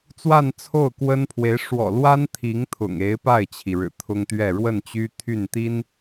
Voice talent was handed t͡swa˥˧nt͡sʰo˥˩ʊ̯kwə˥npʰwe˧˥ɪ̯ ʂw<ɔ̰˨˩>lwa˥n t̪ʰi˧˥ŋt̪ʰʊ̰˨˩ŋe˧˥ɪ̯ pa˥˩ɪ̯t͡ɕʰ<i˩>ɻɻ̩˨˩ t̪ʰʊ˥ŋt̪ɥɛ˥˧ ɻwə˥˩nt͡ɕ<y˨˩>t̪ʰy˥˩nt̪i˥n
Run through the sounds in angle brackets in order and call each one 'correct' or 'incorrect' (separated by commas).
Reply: correct, correct, incorrect